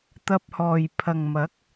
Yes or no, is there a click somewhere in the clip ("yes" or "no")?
no